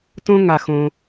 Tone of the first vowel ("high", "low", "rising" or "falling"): high